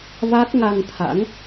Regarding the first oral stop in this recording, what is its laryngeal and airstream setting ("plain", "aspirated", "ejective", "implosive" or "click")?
plain